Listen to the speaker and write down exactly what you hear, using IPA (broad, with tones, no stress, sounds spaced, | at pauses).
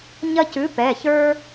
ɲ ɐ˦ c ʉ˨˥ p ɛ˩˧˩ ç ə˞˦